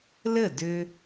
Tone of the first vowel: falling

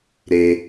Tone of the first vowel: high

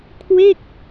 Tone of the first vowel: falling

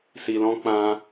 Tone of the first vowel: low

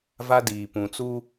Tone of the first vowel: high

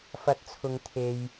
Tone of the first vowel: rising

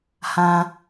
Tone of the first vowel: high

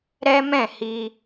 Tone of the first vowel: high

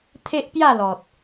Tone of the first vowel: high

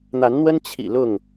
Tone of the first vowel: rising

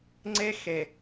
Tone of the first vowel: high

